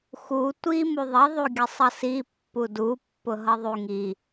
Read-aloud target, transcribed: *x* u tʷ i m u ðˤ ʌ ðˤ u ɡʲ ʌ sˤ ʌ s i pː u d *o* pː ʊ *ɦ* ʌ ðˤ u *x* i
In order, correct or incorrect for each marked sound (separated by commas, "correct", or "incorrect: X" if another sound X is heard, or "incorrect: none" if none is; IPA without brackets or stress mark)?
correct, incorrect: u, correct, incorrect: ŋ